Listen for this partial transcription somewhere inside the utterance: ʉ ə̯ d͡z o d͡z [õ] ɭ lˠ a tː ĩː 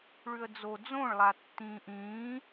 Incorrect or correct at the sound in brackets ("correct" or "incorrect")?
correct